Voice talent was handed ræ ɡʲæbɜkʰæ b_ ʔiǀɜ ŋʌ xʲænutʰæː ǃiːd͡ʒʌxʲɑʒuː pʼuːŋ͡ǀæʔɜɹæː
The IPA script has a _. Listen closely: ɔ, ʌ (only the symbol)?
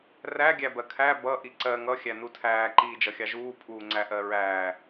ʌ